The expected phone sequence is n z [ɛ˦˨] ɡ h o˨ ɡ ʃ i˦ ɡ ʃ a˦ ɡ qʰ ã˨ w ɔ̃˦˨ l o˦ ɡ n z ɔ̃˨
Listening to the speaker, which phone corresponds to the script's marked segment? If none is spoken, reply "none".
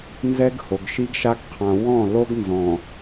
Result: ɛ˦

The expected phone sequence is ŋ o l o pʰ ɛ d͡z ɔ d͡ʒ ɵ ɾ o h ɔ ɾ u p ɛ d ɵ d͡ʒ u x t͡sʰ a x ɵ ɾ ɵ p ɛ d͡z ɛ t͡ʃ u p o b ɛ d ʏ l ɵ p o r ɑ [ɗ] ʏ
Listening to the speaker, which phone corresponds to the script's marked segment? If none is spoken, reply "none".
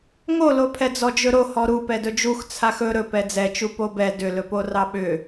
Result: ɓ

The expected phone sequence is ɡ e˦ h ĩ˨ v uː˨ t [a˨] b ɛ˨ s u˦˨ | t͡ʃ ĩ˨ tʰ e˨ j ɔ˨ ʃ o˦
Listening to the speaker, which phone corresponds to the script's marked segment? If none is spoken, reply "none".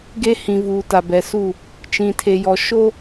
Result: a˨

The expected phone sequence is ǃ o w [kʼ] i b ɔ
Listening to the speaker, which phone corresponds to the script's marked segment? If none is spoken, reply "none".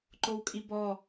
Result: kʼ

